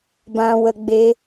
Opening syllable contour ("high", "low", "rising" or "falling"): low